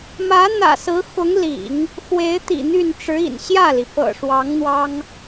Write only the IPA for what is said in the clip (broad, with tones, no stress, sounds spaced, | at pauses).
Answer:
m ä˧˥ n̪ ä̰˨˩ s ɹ̩˧˥ x ʊ˧˥ ŋ l ḭ˨˩˦ ŋ | x w e˧˥ ɪ̯ t̪ ḭ˨˩ n̪ y˥˩ n ʈ͡ʂ ɻ̩˧˥ ḭ˨˩ n ɕ j ä˥˩ l i˩ p ɤ̰˨˩ ʂ w ɑ˧˥ ŋ n̪ w ɑ˥ ŋ